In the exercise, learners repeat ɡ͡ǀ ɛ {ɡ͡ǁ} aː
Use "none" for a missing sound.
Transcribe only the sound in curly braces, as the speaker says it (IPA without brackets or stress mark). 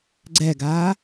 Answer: ɡ